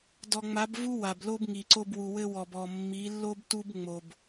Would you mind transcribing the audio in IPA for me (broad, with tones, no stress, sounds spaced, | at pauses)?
d ɔ˨ ŋ͡m a˨˦ b v u˦ w a˨ b l o˦ b ŋ i˨ ǀ o˦ b w u˨ w ɘ˦ w ɔ˨ b ɔ˨ mː i˨˦ lː o˦ b t u˦ b ŋ͡m o˦ b